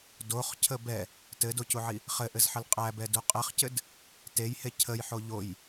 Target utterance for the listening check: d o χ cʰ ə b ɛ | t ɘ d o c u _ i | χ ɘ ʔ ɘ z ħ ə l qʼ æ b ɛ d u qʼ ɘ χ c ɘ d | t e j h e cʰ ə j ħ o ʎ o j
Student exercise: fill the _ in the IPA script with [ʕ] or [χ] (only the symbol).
ʕ